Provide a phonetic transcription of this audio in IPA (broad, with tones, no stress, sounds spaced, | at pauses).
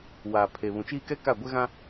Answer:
w aː˨ pʰ e˨ β ũ˨ t͡ʃ iː˦ k ɛ˦ k a˦˨ ɡʷ ɛ˦ ɣ ã˦